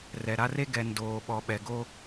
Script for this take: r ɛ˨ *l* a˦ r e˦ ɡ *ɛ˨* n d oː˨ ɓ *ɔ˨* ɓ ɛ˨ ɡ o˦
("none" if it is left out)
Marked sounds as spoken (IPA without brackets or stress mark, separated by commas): ɾ, ɛ˨, ɔ˨